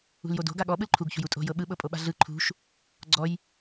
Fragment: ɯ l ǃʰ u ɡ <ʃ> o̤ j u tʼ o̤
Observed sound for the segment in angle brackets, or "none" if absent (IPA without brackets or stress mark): ç